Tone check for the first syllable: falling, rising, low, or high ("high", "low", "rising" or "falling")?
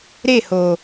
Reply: falling